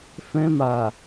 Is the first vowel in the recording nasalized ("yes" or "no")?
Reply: yes